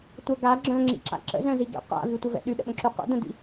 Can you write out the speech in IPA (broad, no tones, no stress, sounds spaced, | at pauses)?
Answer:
tʷ ə ɡ a ɡ͡ǁ œ̃ ŋ͡ǁ ḭ ǁ a̰ ǁ ə̰ z œ̃ z i ɡ ḭ qʷ a̰ v y tʷ ə v ɛ̰ ɗ y ɗ ə̰ ɓ ə̃ ǁ y qʷ ə̰ d ə̃ d ḭ